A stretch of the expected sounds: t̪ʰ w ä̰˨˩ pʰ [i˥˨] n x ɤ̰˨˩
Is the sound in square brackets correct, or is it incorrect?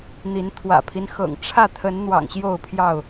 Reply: incorrect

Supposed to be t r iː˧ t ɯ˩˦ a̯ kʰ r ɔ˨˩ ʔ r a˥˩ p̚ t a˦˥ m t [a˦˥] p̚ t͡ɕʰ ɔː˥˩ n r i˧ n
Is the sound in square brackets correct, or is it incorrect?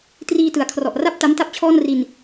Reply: incorrect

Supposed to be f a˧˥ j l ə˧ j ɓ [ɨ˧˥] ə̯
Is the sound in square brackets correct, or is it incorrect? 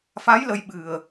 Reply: incorrect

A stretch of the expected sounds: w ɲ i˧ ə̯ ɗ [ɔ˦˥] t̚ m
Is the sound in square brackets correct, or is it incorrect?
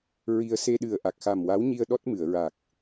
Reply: correct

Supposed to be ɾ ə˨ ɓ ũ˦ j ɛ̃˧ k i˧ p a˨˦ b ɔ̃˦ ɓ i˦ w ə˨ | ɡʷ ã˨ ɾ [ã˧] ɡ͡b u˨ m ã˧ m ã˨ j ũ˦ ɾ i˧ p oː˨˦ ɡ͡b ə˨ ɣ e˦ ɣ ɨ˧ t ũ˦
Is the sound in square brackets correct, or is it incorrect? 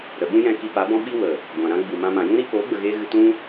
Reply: incorrect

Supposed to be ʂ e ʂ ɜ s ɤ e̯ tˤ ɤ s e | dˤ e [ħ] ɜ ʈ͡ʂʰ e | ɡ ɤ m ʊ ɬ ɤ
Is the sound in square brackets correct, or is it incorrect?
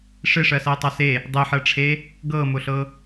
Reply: correct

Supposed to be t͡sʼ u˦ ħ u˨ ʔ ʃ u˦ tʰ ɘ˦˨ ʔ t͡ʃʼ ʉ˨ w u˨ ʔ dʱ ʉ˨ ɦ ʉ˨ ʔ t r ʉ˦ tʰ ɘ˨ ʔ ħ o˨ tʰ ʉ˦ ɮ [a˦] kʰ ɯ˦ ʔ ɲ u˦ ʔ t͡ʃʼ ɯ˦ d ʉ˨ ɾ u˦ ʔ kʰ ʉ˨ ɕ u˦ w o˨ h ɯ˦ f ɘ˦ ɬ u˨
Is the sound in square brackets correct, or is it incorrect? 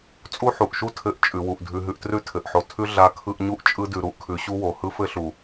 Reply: correct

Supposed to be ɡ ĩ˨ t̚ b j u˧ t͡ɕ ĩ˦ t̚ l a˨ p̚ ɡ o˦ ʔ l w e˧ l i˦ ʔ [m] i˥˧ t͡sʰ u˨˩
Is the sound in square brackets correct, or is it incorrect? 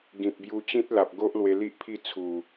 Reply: incorrect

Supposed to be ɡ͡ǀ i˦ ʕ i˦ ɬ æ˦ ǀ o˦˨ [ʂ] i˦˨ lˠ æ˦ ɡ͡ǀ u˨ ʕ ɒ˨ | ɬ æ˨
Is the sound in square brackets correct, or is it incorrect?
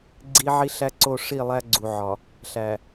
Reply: correct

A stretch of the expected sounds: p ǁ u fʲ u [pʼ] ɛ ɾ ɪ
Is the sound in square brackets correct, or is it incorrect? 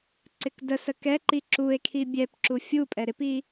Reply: correct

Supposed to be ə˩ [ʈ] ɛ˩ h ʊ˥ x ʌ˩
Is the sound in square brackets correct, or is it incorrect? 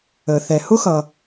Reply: incorrect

